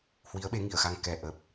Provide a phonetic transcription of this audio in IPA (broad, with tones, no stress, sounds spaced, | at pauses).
h w i˨˦ ə̯ ɓ e˨˦ ŋ i˧˩ ə̯ x a˧ ŋ k ɛ˨˩ ʔ ə˨˩ p̚